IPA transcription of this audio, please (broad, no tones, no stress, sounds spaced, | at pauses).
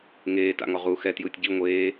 ŋ eː t a̰ ŋ ɔ ʁ u x ɛ t j ɯː tʲ ɟ i ŋʷ eː